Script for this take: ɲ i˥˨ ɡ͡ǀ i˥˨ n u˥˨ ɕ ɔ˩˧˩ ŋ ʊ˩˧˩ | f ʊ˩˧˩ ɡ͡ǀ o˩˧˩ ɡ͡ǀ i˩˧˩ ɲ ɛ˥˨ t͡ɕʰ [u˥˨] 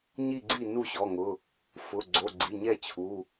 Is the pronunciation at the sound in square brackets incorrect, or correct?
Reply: incorrect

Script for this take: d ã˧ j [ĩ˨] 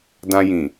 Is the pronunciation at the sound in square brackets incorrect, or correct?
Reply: correct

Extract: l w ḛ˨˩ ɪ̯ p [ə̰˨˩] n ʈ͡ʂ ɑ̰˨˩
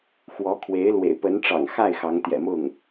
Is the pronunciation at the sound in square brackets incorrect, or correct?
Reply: incorrect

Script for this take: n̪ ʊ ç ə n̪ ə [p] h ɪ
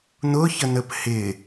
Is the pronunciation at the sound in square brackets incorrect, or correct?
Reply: correct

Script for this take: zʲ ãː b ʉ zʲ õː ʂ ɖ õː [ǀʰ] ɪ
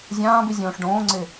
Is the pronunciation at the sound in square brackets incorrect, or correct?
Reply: incorrect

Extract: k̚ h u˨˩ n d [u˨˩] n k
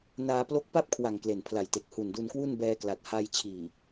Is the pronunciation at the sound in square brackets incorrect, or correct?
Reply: incorrect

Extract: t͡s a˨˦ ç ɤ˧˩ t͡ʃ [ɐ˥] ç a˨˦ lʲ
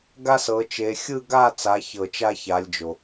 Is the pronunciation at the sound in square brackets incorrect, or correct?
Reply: incorrect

